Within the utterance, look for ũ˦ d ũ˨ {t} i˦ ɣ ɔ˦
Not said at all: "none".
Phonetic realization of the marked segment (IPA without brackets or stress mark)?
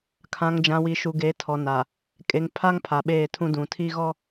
tʰ